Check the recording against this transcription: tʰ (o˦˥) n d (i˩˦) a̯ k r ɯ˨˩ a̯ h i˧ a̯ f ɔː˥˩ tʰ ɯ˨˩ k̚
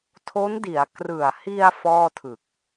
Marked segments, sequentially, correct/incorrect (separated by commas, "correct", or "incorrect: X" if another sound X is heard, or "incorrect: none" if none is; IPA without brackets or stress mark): correct, correct